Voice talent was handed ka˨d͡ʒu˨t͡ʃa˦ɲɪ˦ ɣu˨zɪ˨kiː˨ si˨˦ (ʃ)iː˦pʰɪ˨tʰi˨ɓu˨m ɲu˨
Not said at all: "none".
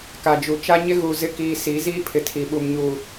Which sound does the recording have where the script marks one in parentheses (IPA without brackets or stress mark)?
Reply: z